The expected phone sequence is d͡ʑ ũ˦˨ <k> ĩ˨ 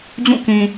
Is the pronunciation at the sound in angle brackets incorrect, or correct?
correct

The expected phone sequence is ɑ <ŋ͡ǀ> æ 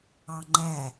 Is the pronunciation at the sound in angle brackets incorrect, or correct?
incorrect: ŋ͡ǃ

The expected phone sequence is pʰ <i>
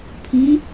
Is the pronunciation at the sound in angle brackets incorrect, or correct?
incorrect: ĩ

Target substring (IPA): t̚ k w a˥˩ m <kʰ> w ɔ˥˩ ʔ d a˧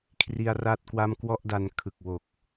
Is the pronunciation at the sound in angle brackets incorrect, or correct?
incorrect: k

